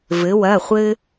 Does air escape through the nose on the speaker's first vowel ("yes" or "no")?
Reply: no